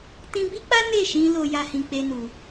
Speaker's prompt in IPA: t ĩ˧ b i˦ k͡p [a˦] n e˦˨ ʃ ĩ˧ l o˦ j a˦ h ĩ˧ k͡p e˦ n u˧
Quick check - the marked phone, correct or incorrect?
correct